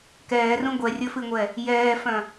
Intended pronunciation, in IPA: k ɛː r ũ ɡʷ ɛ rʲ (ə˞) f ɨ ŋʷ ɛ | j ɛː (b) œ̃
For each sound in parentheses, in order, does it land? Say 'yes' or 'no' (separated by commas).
yes, no